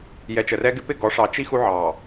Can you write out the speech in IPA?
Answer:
jɛ˨t͡ʃə˨rɛ˦ɡɪ˦ pɪ˦˨ɡɔ˨˦ ʂɑ˨t͡ʃi˦ xu˦ʕɑ˨

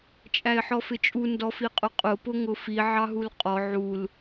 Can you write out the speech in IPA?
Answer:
t͡ʃʼæɪ̯ħɔfɪt͡ʃʼu ndɔfiqʼʊqʼʊ pʊŋʊfi ʕɑɦulqʼɔ ʕul

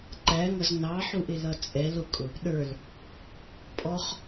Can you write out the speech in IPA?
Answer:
ǃæŋʌz nɑħuʔɪlʌ t͡sʼɛl ʊkʼʊ | ɗə˞l | pʼɔχ

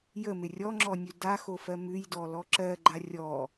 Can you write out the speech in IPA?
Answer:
jəmɪ rʲɔŋ͡ǁɔnʲʉ daxofɜ mʉjdɔlɔ ǁɜɡ͡ǃa rʲɔ

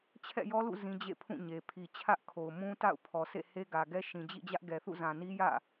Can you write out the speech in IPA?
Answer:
t͡ɕʰɛ̰˦˨jɔ˦lṵ˦˨ zĩ˦d͡ʑḛ˦˨pʰũ˦˨ɲe˨ pʰi˨t͡ɕʰä˦ʔkʰo˨ʊ̯mũ˦ ta̰˦˨ʊ̯pʰɔ˨sḛ˦˨ he˦ɡä˨ɡɛ˦ ʃĩ˨d͡ʑḭ˦˨d͡ʑä˦ʔɡɛ˨ θṵ˦˨zã˨ni˦ jä̰˦˨

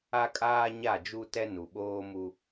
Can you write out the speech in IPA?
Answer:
a˦kʼaː˦ɲa˦˨d͡ʒu˦ tɛ˦ nu˨ɓoː˦mu˦

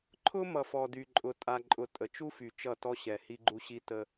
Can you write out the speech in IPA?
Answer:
ǃʰʊ˦ mʌ˨fɔ˨dy˨ ǃʼʊ˨tʼa˨ǃʼʊ˨ tʼə˨t͡ʃu˦fy˨ t͡ʃʌ˦˨tɔ˦ɕɛ˨ hi˦ɡ͡ǃu˦ɕi˦tə˦

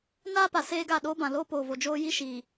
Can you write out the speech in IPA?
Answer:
naː˦pa˨ seː˦ɡa˦˨ɗoː˦ bã˨lo˦poː˨ vo˨d͡ʒoː˦ji˦ ʃiː˨

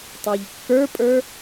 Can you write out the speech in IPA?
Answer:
tˤɵʎkːə˞pʼə˞

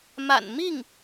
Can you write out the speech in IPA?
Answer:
ma̰˨˩nmi˥˩ŋ

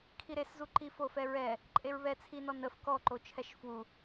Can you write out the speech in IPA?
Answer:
kʰiɾeszuǃi fofɛɹɛ | ǃʼeɹβɛ t͡sʰinɔnəf kɔǃo t͡ʃʰɛʃfwu

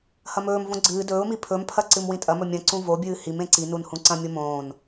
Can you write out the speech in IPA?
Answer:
hɐmɵːmvõ ɡ͡ǀɨː dɵːʊ̯mi pʰɵmpʰɐ ǀɨmwĩtʼɐmɵ mʲɐ̃ǀũ vobʲɨː himẽ ǀinun hũǀɐ̃mʲo mõːn

